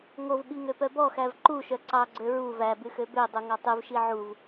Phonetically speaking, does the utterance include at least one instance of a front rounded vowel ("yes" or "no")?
yes